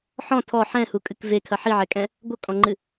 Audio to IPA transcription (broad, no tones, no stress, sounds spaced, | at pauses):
ħ ɔ̃ tʰ ɔ ħ ɛ̃ h u kʼ ɨ k v e kʰ ɐ ħ i ʕ ɛ kʼ ɛ̃ | ɡʷ ɐ kʼ ɔ̃ ŋ͡ǃ ɨ